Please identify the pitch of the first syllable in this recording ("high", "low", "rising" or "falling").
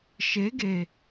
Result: rising